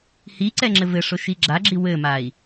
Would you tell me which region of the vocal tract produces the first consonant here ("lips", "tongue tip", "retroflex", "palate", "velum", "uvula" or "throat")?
throat